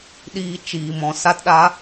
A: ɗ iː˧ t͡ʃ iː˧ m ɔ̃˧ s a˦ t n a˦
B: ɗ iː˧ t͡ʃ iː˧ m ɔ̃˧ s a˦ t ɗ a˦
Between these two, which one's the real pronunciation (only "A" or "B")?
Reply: B